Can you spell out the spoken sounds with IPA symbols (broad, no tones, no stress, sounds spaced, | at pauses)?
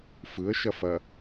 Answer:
f ɯ ə̯ ʃ ɐ f ɐ